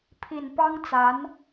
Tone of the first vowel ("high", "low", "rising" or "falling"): low